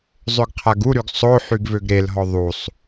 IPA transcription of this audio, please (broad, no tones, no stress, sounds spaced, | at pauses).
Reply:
zˤ ø ɡ qʰ a ɡ u ɾ y ɡ sˤ o ħ y ɡ v ø ɡ ɾ e l ɦ ɔ ðˤ u sˤ